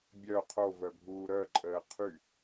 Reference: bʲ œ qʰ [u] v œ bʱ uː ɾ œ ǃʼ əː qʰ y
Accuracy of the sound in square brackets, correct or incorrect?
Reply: incorrect